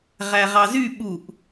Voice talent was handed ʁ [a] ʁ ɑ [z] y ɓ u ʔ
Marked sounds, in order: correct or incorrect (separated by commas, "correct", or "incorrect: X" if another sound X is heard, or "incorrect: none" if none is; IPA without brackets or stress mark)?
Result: incorrect: æ, correct